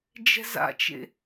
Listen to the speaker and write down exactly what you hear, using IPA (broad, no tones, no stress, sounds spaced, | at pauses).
d͡ʒ ɛ̤ z a̰ t͡ʃ ḛ